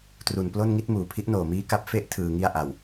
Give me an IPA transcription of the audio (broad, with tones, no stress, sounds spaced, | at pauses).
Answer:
t r u˨˩ n p l o˥˩ n ŋ i˦˥ t̚ m uː˩˦ pʰ i˦˥ ʔ n oː˨˩ m iː˦˥ k a˦˥ p̚ f e˥˩ ʔ tʰ ɯː˧ ŋ i˥˩ a̯ ʔ a˨˩ w